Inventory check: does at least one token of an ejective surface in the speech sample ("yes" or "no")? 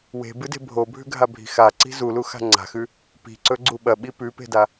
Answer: no